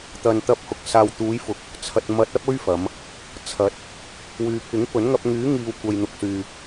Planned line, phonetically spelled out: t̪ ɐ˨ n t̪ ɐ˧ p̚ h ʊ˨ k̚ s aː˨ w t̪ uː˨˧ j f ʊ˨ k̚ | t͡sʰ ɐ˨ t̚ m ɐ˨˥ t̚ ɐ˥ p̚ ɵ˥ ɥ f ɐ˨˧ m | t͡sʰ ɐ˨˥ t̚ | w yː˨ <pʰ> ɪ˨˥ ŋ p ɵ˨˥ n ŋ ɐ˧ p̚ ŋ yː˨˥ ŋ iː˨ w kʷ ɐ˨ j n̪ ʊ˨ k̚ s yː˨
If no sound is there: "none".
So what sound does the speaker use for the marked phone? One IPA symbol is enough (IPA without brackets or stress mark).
pʰ